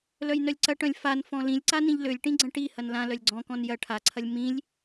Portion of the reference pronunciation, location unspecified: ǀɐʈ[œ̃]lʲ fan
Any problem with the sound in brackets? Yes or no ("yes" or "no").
no